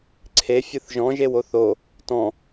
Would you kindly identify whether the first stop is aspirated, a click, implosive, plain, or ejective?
click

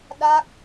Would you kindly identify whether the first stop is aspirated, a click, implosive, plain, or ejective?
implosive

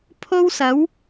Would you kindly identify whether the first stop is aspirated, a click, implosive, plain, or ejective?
aspirated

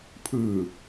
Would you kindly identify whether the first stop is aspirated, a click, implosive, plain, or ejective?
aspirated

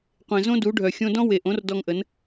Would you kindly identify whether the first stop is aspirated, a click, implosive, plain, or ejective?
plain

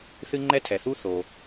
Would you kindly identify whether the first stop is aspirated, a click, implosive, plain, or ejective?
click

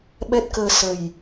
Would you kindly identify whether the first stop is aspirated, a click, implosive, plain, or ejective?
implosive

